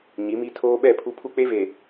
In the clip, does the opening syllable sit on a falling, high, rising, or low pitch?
rising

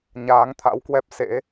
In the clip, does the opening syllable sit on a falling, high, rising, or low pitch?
rising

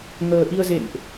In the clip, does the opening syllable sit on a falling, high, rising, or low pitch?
low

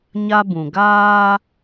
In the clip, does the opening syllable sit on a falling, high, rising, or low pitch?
high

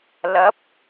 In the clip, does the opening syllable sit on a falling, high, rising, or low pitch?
rising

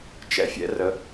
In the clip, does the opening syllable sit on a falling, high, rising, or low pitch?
high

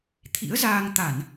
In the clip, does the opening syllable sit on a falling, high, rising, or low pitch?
rising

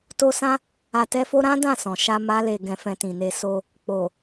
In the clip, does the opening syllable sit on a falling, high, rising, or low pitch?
high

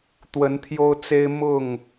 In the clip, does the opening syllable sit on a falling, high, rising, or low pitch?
rising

